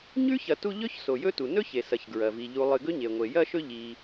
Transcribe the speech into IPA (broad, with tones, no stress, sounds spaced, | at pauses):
ɲ ʉ˥ ç ɐ˨ t u˦ ʎ ɵ˥ ç s o˩ j ɵ˦ t u˩ n ɵ˥ ç e˩ s ɐ˩ ç ɡ ɹ ɐ˩ v i˩ ʎ u˨ lˠ ɨ˨ ɡ ɵ˥ ɲ e˩ ŋʷ e˩ j ɐ˦ ʃ ɵ˦ ʎ i˨